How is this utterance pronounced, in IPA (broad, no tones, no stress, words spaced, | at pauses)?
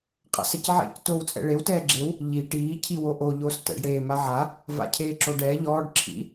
qʼa̰sɛcʕḛc toːwt͡sʼɛ̰ɭew tɛːɡ͡ǁew | ʎi ʈiː cʰiwoʔo ʎoːstɛ̰ɖ ɽeː maʕa | va̰cʰeːǁoɖɛː ʎɔːɖ ǁʰḭ